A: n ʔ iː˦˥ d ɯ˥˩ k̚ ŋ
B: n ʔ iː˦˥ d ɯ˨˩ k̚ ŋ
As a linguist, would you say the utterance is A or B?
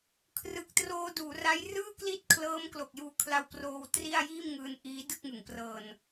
A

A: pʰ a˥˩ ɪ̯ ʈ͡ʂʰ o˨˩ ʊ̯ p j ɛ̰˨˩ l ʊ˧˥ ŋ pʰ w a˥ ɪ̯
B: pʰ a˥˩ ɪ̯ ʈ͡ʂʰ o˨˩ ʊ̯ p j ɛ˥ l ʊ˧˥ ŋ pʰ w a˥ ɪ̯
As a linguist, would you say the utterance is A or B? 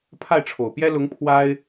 B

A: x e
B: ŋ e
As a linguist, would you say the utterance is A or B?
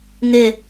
B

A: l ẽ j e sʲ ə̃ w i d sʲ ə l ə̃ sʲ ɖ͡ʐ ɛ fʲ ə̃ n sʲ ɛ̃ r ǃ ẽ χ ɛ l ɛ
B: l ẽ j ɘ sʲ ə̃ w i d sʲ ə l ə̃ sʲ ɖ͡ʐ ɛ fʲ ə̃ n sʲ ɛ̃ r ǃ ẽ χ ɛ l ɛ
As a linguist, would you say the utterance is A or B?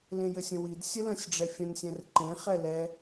B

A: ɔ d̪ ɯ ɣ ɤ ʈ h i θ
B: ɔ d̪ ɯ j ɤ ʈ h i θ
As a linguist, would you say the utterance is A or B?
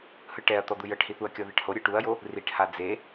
B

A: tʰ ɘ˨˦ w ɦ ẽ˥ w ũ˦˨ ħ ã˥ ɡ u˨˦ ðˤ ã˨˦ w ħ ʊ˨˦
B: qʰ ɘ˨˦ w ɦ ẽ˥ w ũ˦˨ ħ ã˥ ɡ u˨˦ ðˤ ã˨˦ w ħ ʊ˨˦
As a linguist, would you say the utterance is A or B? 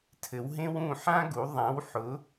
A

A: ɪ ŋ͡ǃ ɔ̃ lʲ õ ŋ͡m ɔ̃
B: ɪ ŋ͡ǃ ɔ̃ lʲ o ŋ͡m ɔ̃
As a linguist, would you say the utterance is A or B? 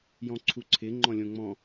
A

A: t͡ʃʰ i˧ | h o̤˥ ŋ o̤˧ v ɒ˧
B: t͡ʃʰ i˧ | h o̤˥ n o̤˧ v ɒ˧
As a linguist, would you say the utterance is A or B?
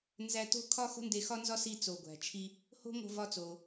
A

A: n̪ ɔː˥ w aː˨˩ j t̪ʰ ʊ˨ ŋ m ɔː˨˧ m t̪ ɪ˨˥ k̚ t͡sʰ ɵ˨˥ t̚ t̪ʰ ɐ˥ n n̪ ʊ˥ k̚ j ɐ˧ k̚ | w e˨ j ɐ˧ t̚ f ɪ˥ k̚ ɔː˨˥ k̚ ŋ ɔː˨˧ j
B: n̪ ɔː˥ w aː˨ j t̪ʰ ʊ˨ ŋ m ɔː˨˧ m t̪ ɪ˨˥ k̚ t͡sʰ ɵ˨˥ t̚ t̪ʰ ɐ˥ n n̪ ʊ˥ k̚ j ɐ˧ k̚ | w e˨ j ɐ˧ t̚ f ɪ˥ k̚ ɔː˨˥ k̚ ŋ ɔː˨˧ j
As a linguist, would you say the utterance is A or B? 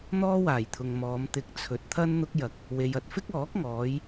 A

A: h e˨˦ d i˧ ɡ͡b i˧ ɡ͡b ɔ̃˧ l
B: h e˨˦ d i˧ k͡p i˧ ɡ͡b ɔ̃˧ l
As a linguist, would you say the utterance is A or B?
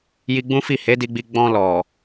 A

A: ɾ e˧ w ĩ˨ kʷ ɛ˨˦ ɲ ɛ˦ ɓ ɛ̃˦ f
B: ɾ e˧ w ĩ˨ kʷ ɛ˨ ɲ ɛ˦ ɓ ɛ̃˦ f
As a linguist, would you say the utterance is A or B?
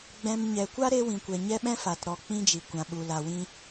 B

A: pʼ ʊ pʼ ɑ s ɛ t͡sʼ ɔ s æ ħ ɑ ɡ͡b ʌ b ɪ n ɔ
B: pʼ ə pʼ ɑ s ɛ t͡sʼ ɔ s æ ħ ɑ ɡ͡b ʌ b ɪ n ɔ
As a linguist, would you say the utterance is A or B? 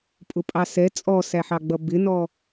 A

